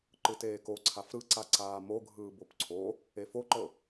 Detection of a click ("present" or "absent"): present